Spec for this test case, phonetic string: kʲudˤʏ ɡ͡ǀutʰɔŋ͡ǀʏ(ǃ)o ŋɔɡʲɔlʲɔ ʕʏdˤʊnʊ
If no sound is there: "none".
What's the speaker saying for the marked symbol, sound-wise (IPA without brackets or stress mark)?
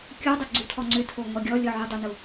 tʰ